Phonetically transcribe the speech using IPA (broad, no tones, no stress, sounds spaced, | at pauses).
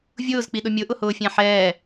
vʲ ʊː z k͡p i ɗ ʊ mʲ ʊ ʔ ʊ h ʊː fʲ æ̃ ħ ɛː